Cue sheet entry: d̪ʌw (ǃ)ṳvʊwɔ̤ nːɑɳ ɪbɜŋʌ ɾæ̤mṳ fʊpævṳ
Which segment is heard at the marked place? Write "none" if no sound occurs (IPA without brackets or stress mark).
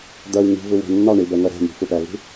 ŋ